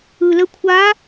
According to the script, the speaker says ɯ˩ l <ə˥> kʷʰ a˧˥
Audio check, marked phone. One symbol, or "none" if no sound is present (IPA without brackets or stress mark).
ə˧